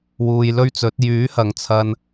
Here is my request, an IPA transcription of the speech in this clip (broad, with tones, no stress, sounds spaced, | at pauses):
w uː˨ j l ɵ˥ ɥ t͡s ɵ˨˥ t̚ j yː˨˥ h ɐ˨ ŋ t͡sʰ ɐ˧ n